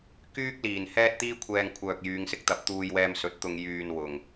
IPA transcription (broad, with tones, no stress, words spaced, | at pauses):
kyː˥k̚ liː˨˩nhɛː˥t̚ t̪iː˥kʷʰɛː˧ŋ kʷʰœː˧k̚ jyː˨˧ŋsɪ˥k̚t̪ɐ˨˥p̚ t̪uː˧jwɛː˧msɵ˨˥t̚t̪ʊ˧ŋ jyː˧n wʊ˨˩ŋ